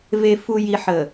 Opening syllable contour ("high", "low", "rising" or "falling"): low